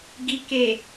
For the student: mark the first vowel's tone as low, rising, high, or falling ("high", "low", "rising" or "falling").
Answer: low